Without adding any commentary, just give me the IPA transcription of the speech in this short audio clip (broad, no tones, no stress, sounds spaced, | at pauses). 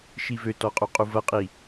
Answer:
ʃ i v ø t ɔ qʼ u qʼ u v ɐ qʼ i